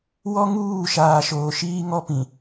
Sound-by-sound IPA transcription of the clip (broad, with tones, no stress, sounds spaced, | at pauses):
w ɔ˦ ŋ uː˦˨ ʃ aː˨ ʃ oː˨ ʃ iː˦ ŋ ɔ˦ p ĩ˨